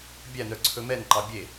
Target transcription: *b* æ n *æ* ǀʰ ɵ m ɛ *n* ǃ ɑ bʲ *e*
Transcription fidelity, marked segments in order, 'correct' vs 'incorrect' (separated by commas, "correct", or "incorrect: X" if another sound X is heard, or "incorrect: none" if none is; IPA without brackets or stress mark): incorrect: bʲ, incorrect: œ, correct, correct